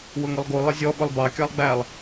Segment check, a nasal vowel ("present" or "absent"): absent